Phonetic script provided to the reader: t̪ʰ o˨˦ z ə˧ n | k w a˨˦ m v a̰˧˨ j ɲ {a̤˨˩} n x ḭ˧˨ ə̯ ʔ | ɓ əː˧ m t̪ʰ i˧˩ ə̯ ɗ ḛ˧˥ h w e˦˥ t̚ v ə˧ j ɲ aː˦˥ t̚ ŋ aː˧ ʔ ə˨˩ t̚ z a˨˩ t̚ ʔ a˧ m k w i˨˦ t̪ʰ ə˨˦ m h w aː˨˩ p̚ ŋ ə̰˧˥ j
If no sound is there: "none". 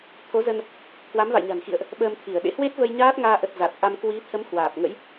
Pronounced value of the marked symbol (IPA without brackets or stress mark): a̤˨˩